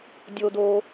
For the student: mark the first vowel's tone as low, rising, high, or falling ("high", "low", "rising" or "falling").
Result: high